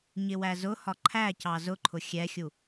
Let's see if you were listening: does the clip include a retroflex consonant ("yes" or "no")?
no